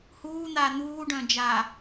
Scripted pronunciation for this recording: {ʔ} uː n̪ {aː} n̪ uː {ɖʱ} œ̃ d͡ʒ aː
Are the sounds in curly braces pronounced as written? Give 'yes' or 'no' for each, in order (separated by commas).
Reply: no, yes, no